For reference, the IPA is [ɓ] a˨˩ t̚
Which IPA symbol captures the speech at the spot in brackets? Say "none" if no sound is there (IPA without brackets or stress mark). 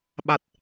ɓ